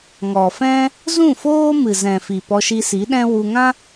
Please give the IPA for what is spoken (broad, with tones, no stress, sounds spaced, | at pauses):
ŋ ɔ˨ f ɛ̃˦ | z ũ˦˨ f oː˦ m ɨ˨ z ɛ̃˨ f i˨ p ɔ˧ ʃ i˧ s i˨˦ ɗ ɛ̃˦ w u˧ ŋ ã˦